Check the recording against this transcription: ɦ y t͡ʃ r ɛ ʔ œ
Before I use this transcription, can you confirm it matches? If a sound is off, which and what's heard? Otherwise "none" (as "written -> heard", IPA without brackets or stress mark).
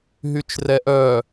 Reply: none